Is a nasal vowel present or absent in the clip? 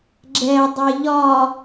absent